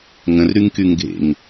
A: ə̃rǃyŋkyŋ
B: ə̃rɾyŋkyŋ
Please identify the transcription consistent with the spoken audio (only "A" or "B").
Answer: B